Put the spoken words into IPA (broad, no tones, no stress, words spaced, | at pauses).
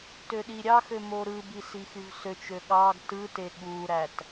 tøɗiɾʲɑxø moɾɯbi sixyvsøt͡ʃø ɠɑɡ tɯte ɠuɾæt